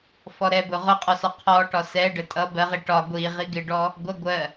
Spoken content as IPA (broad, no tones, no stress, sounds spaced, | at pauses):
f ɔ ɾ ɛ b ʊ ʁ ʊ qʼ ɔ s ɒ qʰ ɔ ʈ ɒ s ɛ ɖ ə tʼ ʌ b ɜ ʁ i ʈ ɒ ɡʷ i ʁ i ɡ ɪ ɖ ɔ | ɡʷ ʌ ɡʷ ɜ